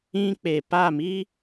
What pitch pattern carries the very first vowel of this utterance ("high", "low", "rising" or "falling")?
high